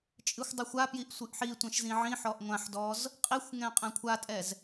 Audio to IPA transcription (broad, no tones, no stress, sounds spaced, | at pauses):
t͡ʃʼ ɨ xʷ dˤ ɨ xʷ a p j i ʔ sʷ ɨ ʔ ħ i tʷ ɛ̃ ʃ z ĩ ʕ ĩ ħ ɔ ʔ ŋʷ ã ħ d ɔ z | qʼ i xʷ ŋ ɛ̃ qʼ ɛ̃ kʷʰ a tʼ ɛ z